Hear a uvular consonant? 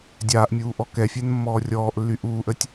no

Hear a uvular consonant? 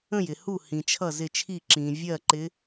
no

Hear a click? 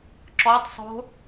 yes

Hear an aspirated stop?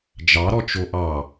no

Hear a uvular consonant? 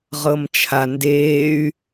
yes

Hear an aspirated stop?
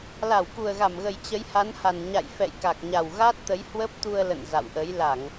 no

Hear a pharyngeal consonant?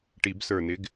no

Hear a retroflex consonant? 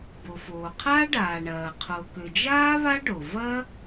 yes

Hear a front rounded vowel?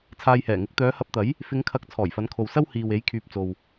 yes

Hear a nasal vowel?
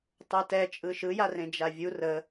yes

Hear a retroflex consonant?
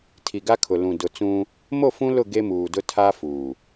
no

